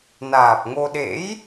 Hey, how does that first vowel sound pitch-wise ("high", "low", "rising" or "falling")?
low